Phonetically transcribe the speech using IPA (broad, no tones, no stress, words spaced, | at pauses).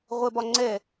ʁʷɛbɒŋ͡ǀɛ